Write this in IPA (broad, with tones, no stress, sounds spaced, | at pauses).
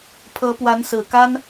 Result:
pʰ ɤ˧˥ p w a˧˥ n s ɹ̩˨˩ k a˥ n